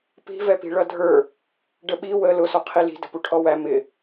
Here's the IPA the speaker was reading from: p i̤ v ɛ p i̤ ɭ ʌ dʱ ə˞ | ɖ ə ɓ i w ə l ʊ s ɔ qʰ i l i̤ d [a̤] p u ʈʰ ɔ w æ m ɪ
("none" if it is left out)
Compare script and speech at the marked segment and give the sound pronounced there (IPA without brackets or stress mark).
ə̤